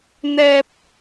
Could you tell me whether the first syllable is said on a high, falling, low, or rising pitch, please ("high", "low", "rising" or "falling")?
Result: low